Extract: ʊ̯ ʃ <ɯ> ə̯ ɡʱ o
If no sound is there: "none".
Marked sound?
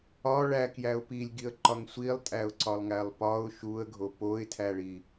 u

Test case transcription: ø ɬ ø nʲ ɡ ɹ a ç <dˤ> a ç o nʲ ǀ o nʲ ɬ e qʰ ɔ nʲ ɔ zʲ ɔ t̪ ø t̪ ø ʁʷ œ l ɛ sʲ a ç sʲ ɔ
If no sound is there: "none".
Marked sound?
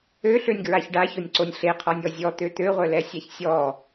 ɖ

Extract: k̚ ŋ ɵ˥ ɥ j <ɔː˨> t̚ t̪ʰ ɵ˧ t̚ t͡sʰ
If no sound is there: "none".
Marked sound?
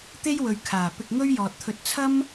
ɔː˨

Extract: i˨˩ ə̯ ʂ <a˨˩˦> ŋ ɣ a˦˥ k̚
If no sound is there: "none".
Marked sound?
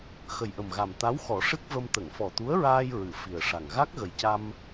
a˨˩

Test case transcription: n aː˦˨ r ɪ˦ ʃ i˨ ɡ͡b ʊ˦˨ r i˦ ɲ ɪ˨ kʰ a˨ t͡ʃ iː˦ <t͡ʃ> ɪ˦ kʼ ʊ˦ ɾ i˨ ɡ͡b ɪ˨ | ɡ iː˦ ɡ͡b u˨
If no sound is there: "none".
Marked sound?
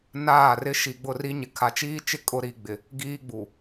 t͡ʃ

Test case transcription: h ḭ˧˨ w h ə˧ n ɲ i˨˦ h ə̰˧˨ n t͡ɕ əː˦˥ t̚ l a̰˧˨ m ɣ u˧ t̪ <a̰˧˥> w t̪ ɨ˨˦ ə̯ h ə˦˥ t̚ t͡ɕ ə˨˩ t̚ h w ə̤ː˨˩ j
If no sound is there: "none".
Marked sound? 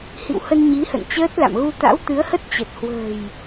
a̰˧˥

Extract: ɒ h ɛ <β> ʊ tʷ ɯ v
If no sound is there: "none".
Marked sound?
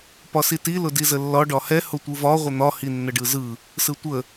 h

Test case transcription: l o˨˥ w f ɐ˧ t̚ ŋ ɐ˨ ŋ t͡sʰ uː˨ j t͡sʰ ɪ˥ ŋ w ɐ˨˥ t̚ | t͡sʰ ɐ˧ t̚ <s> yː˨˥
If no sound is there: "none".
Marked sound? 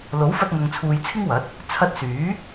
s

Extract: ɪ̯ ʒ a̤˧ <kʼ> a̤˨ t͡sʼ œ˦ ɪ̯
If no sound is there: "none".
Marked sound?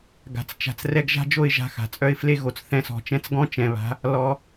x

